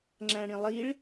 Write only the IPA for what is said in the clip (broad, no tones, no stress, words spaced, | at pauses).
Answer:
ŋ͡ǁæ̃ɽĩlˠiɭ